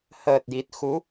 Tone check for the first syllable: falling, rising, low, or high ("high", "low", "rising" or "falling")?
low